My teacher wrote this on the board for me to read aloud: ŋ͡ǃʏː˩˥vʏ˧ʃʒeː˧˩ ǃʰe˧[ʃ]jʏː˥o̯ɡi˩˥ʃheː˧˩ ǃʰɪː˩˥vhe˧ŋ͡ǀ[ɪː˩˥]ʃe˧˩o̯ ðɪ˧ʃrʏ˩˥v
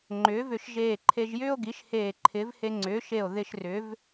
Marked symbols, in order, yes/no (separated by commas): no, no